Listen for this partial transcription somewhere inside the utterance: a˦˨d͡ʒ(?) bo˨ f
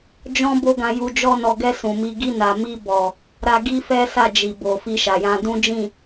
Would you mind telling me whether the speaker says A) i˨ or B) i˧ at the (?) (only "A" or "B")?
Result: A